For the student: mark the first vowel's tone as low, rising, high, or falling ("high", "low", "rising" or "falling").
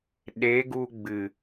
rising